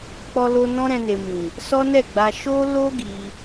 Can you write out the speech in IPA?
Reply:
k͡pɔ˧lo˧ nɔ̃˦ɾɛ̃˧ne˨mĩ˨ | sɔ˦nɛ˦˨ɡ͡ba˧ ʃo˦ lo˦ ɡi˧

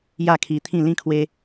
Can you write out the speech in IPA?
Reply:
ja˥˧kʰi˧t̪ʰĩ˥˧ lĩ˥˧kʰwe˦

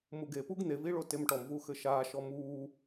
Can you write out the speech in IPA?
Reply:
muɡepuɡ n̪eviɭo temʈɔmvu xɘʃaːʃɔ muː

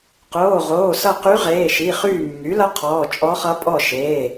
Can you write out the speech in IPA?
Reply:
qoː˩˧˩ʁoː˩˧˩ sʌ˦˨qy˧˥ʁeː˩˧˩ʃi˩˧˩ χyː˦˨mːy˩˥lʌ˧˥ qʰɔː˩˧˩t͡ʃʼɔ˧˥χʌ˧˥ pʼɔ˦˨ʃeː˩˧˩

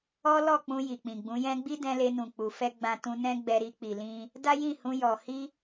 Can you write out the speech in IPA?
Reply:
ɔ˦ lɔ˦˨k͡pũ˧ ji˨k͡pĩ˨ɡ͡bũ˨˦jɛ̃˦ ɡ͡bi˦dɛ̃˧le˧nũ˨ k͡pu˨ fɛ˧ ɡ͡bã˧tũ˧nɛ̃˦ ɡ͡bɛ˧ɾi˧k͡pi˨lĩ˧ | da˦jĩ˦˨ hũ˧jɔ˨ hi˧

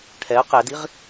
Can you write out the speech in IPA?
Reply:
ʈʰɛə̯ qɛdiʁ

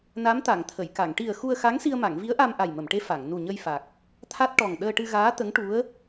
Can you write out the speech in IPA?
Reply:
na˧˥mt̪a˨˩˨ŋt̪ʰə˨˩˨jka˨˩˨ŋ ʈi˨˩ə̯ xu˧ə̯xa˧˥ŋ si˧ə̯ma˨˩˨ŋvi˧˥ə̯ʔa˧m ʔa˨˩jmə˨˩˨mʈe˧˥ fa˨˩˨ŋ nu˨˩ɲə˧jfa˨˩k̚ | t̪ʰa˦˥t̚ ʈɔ˨˩ŋ ɗəː˧ʈɨ˧ɣaː˧˥ t̪ə˧˥ŋʈu˧˥ə̯

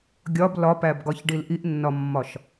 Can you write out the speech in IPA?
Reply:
ɡʲɒb lɒpæbɡɒçɖil ʔiʔnːɒmːɒʃ

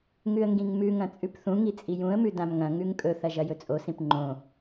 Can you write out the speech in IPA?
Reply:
ŋʉə̯ŋɡĩŋmʉŋɐ̃ t͡sʼʉpθũŋi t͡sʼijũə̯mʉ dãmŋɐ̃ŋʉŋ kʼɵθɐ ʒɐjɵt͡sʼosĩp ŋ͡ǃõ

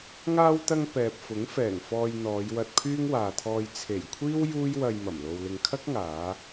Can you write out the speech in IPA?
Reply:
ŋaː˧wt̪ɐ˧ŋ pɛː˨p̚fʊ˨˥ŋfɛː˨˩ŋfɔː˧j n̪ɔː˨˧jwɐ˧t̚pʰyː˥ŋ waː˨t̪ʰɔː˧j t͡sʰe˨˩jkʷʰiː˥w juː˥jwɐ˧j mɐ˨˩mlo˧wlɪ˧ŋ kʰɐ˥k̚ŋaː˨˧

